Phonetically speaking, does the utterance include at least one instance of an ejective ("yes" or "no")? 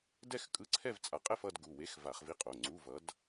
yes